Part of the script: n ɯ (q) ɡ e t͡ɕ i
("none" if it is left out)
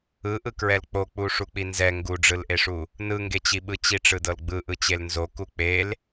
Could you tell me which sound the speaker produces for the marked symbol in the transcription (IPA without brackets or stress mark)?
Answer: ŋ